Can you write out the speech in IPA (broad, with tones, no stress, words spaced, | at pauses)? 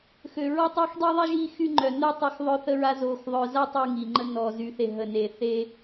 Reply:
xø˧ ɹɔ˥tˤeː˥xdˤiː˥ ðˤe˥ ʒiː˥xy˥ŋ͡ǃœ˧nœ˥ tˤa˥xðˤœ˥θə˥ɹa˥ zoː˧xðˤœ˧za˥ tˤy˥ŋi˧ŋ͡ǃə˥ nɔ˧zy˧θ e˧ ɦə˧ neː˧θeː˥